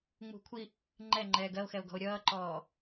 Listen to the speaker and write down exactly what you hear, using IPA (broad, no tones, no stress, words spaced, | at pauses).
ŋ͡mṳ kʷʰi | ŋ͡ǃɛŋ͡ǃɛː ɡɜo̯xɛo̯ ɡɔ̤o̯ɾʲʌːǃɔː